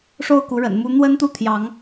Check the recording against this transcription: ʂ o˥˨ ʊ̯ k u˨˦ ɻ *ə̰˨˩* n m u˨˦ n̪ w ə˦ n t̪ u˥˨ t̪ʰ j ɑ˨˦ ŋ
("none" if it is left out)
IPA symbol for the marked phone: ə̰˨˩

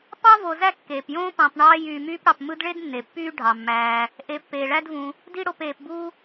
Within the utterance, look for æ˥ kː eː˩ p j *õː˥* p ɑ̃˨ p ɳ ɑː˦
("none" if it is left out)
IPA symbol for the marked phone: õː˥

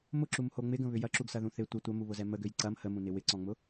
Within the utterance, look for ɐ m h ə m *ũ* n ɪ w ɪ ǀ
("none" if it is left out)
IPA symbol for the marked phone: ũ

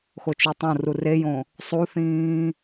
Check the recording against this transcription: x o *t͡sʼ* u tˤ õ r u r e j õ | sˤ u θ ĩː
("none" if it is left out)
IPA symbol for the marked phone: t͡ʃ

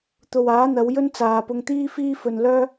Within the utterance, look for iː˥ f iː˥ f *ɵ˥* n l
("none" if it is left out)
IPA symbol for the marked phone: ɵ˧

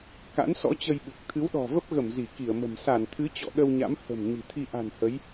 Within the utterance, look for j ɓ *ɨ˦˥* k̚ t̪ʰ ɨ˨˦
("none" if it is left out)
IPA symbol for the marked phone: ɨ˨˩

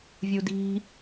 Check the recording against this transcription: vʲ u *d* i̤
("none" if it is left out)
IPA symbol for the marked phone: d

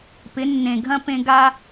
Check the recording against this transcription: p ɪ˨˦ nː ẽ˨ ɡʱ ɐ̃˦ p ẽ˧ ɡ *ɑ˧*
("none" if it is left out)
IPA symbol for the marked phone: a˧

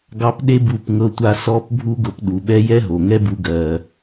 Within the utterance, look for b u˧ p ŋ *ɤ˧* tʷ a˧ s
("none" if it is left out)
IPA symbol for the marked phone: ɤ˧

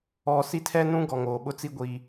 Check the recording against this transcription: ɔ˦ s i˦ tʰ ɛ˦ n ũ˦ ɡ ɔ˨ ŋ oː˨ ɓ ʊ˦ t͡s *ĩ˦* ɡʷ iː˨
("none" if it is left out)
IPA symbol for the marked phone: i˦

